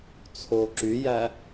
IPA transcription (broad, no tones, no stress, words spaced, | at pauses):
t͡sʰoǁyjæ